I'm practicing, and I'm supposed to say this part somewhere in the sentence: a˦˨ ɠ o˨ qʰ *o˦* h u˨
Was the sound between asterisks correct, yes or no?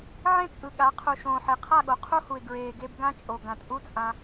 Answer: no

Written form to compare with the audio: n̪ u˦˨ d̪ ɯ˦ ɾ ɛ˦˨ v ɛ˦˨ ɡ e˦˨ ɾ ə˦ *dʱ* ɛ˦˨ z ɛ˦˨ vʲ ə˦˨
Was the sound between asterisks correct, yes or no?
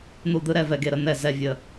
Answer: no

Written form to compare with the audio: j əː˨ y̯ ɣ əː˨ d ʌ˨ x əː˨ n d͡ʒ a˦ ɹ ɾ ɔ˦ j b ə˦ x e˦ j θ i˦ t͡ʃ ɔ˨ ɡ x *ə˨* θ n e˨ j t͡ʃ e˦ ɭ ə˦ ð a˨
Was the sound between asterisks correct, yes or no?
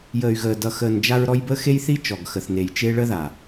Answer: yes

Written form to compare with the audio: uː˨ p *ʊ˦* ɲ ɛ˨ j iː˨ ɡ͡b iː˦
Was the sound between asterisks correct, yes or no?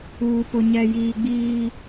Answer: no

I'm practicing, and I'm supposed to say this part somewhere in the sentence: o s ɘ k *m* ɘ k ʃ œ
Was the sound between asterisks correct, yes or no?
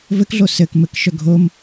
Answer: yes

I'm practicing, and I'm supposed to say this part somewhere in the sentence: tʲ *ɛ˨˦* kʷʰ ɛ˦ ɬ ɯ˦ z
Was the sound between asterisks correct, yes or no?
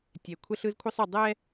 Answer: no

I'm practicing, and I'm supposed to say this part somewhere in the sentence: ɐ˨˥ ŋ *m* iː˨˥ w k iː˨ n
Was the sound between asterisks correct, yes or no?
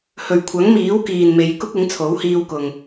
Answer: yes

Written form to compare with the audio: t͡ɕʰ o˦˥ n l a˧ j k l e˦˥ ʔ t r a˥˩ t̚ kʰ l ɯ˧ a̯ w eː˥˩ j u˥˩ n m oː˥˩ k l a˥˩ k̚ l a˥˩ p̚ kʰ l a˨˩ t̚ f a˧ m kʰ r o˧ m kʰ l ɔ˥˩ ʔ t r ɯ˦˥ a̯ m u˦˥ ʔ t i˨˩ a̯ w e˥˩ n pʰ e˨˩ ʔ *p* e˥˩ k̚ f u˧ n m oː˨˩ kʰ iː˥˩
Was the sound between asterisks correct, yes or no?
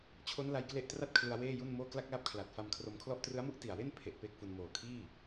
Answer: yes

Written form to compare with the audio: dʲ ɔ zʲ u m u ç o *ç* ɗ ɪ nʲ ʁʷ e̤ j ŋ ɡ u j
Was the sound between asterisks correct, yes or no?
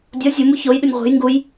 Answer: no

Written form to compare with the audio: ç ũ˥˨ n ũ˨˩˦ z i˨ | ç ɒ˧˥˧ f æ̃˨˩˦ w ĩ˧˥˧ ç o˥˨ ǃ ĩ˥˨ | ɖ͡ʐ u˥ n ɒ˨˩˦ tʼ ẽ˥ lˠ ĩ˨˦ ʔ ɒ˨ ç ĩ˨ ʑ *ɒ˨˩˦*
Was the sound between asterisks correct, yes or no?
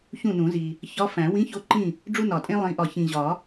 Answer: yes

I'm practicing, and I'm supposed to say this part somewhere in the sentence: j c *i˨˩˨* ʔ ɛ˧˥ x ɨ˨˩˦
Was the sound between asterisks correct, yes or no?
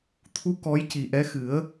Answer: no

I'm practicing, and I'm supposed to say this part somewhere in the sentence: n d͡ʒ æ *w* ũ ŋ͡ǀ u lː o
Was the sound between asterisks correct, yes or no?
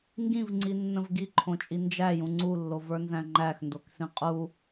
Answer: no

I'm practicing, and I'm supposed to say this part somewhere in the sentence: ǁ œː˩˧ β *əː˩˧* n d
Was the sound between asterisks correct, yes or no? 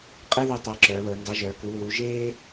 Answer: yes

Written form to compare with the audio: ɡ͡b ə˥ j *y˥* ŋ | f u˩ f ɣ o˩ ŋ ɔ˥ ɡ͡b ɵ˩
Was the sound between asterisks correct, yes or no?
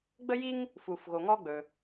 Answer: no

